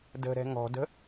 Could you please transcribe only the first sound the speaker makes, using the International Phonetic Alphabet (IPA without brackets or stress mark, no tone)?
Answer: d